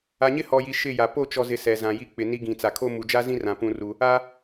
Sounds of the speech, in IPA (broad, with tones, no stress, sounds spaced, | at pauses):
a˨ ɲ ɪ˦ h ɔ˨ j i˨ ʃ ɪ˦˨ j a˨ p o˦˨ t͡ʃ ɔ˨ z ɪ˨ s ɛ˨ z ã˨ j i˦ k͡p ɪ˨ n i˦ ɡ ĩ˨ t͡s a˨ kʰ o˦ m u˨ d͡ʒ a˦ z ĩ˦ r ã˨ p ũ˦ r u˦ | a˦